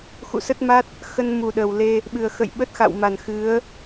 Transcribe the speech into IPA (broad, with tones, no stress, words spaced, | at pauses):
xṵ˧˨sə˦˥t̚ma˦˥t̚ | xə˧nmu˨˩ɗə˨˩wle˧ | ɓɨ˨˩ə̯xə̰˧˨jɓə˦˥t̚ xa̰˧˨wma˨˩nxɨ˨˦ə̯